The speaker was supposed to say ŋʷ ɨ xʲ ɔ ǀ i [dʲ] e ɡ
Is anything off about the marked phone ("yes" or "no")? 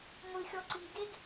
yes